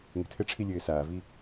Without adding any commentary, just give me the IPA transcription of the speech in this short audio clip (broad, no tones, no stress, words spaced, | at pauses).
ŋɛ̤tʰɘʈ͡ʂʰi lʲɘːsaːvi